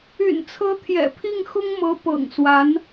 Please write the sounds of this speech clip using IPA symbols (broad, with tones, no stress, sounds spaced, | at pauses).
y̰˨˩ n t͡sʰ ɤ˧˥ t̪ʰ j ɛ̰˨˩ pʰ i˥˩ ŋ x ʊ˥ ŋ m ɤ˧˥ p ɤ̰˨˩ ŋ s w a˧˥ n